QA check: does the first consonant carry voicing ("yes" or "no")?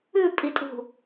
no